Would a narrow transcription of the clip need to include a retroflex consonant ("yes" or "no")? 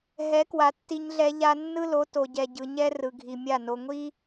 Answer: no